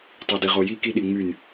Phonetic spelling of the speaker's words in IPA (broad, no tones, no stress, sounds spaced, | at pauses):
tˤ y d i ʁ o j i k i ɗ i ŋ͡m y n